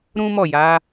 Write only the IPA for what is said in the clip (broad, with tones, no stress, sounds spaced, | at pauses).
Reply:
ɾ ũ˦ m ɔ˦˨ j a˨˦